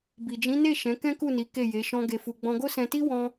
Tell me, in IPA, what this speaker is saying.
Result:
b i˨ d͡ʒ ĩ˨˦ n e˦˨ ʃ ɛ̃˨˦ k ɛ̃˦ k u˦˨ n i˨˦ k e˦˨ j e˨˦ ʃ ɔ̃˦ ɡ e˧ f u˧ ɡ͡b ɔ̃˧ ɡ o˦ s ɛ̃˧ t i˦ w ɔ̃˦

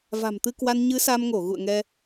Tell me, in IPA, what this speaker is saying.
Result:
v a̤˨˩ m t̪ ɨ˧ k w a˧ n ɲ ɨ˨˦ s a˧ m ŋ o˧˩ ɣ ṵ˧˨ ə̯ ŋ ɛ˧

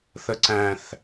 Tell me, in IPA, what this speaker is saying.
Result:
θ ə ǀ æ̃ θ

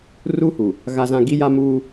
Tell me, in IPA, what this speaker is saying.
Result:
r u˦ h u˨ | ɣ a˦ z ã˦ ɡ i˦ j a˦ m uː˦

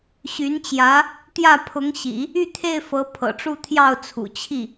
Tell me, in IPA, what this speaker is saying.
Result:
ɕ y˧˥ n t͡ɕ j ä˧˥ | t̪ j ä˥˩ pʰ ʊ˧˥ ŋ ɕ ḭ˨˩˦ | y˥˧ t̪ʰ e˥˩ ɪ̯ f ɤ˧˥ pʰ ɤ̰˨˩ ʈ͡ʂ u˥˧ t̪ʰ j ɑ˥˩ ʊ̯ t͡sʰ ṵ˨˩ t͡ɕʰ i˥˩

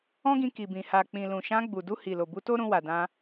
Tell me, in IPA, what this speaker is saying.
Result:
ɔ̃˦ ɡ ĩ˧ k i˨ b ĩ˨ h a˨ k͡p ĩ˨ l ũ˨ ʃ ã˧ ɡ͡b u˨ d u˧ h i˨ l o˨ b u˧ t o˦ ɾ ũ˧ w a˨ d ã˧

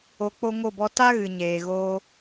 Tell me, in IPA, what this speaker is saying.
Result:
o˧ k͡p o˦ ŋ o˦˨ b ɔ˦ t a˦ ɣ ɨ˨ ɲ eː˨ ɣ oː˧

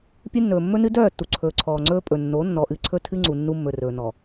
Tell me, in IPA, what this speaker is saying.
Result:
pʲ ɨ˦ nː ɵː˨ mː ɵ˦ n ɨ˦ d œː˦˨ tː u˨ ǀʰ ɵː˨ ǀʰ ɔː˨ ŋ͡ǀ ɵː˦ pʼ ɵ˨ nː o˨˦ nː ɔ˨ ʔ ɨ˨ ǀʰ ɵ˦ tʰ ɨ˦ ŋ͡ǀ u˨ nː u˦ mː ɵ˨ r ɵː˨ n ɔ˨

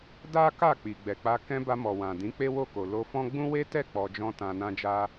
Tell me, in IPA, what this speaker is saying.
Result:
d a˦ k a˦˨ k͡p i˨ ɡ͡b ɛ˨ k͡p a˧ k ɛ̃˧ b a˧ m ɔ˨ w ã˨ d ĩ˨˦ k͡p e˦ w o˦˨ k o˨ l o˧ f ɔ̃˦ ɡ͡b ũ˦ w e˦ t ɛ˦˨ k͡p ɔ˧ d͡ʒ ɔ̃˦ t ã˧ n ã˦ d͡ʒ a˦

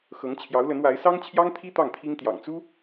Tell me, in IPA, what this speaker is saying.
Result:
x ɤ˧˥ ŋ t͡ɕʰ j ɑ˧˥ ʊ̯ l ə˧˥ n w a˧˥ ɪ̯ s ɑ˥ ŋ t͡ɕʰ j ɑ˥ ŋ t̪ʰ i˥ t̪ ɑ˥˩ ŋ t̪ʰ i˥ ŋ t̪ j ɑ̰˨˩ ŋ t͡s u˥

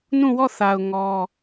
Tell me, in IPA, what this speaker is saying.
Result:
n ũ˦˨ w ɔ˦˨ θ a˨ ʊ̯ ŋ ɔ˦

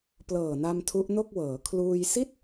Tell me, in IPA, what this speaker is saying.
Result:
p l ɤː˨˩ n a˧ m tʰ u˦˥ ʔ n o˥˩ k̚ w ɤː˩˦ kʰ l uː˧ j s i˥˩ t̚

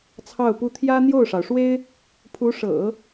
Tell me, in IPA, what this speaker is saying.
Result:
t͡sʰ ɑ˥˩ ʊ̯ p u˥ t̪ʰ j ä˥ n̪ j o˥˩ ʊ̯ ʂ ɑ˩ ʊ̯ ʂ w e˥ ɪ̯ | pʰ u˧˥ ʂ ɤ̰˨˩˦

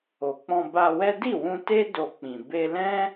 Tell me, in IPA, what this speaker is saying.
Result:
o˨ k͡p ɔ̃˧ b a˧ w ɛ˦ d i˦˨ w ũ˧ t e˦ d o˧ k͡p ĩ˨ b e˧ l ɛ̃˦

